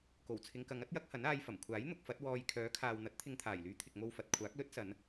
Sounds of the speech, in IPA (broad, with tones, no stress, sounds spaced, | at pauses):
k o˨˩ w t͡sʰ ɪ˨˧ ŋ k ɐ˨˧ ŋ ɐ˥ t̚ j ɐ˨˥ k̚ h ɐ˨˥ n aː˧ j f ɐ˨˩ m kʷʰ aː˨˥ j n̪ ʊ˧ k̚ f ɐ˨˥ t̚ w ɔː˧ j kʰ œː˨˥ kʰ aː˨ w n̪ ɐ˨˥ t̚ t̪ʰ ɪ˧ ŋ t̪ʰ aː˨˩ j l yː˨˧ t̪ʰ ɪ˨ k̚ m o˧ w f ɐ˨ t̚ kʷʰ aː˨˥ k̚ l ɵ˥ t̚ s ɐ˨˧ n